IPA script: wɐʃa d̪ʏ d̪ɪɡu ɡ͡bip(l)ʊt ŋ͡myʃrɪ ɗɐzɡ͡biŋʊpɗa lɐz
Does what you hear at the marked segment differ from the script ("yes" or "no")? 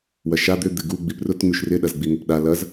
yes